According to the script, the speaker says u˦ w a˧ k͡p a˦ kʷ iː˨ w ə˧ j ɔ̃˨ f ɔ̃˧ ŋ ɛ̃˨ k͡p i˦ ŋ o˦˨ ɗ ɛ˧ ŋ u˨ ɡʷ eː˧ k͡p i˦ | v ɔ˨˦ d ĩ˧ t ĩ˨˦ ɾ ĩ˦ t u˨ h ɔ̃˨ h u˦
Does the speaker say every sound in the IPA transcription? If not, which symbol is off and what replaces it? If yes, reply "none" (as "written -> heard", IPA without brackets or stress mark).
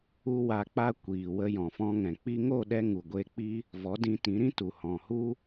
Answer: none